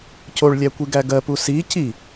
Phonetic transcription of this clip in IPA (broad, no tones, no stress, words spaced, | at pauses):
coɭlʲæ kʷiɡæɡɜ pusi ci